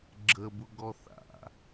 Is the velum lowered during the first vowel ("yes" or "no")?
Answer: no